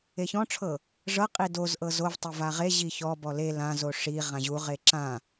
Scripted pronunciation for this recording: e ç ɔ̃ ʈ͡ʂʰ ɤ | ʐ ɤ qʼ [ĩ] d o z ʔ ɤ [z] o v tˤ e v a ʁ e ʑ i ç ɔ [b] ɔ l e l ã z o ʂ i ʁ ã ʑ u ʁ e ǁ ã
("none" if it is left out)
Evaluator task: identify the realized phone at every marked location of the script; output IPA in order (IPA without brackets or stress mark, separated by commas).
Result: i, z, b